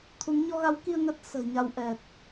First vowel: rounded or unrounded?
rounded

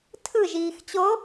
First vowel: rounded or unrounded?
unrounded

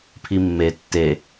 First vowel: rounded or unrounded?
unrounded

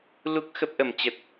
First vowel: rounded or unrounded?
rounded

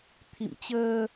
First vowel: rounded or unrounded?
unrounded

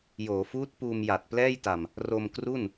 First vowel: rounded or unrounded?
rounded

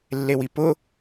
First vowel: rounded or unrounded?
unrounded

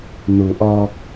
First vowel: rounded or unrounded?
rounded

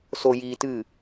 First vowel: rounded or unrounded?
rounded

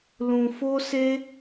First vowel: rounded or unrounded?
rounded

